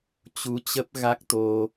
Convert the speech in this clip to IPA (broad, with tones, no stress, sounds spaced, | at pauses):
t͡ɕ u˨˦ t͡ɕ ə˦˥ p̚ ɣ a˦˥ k̚ t̪ o˧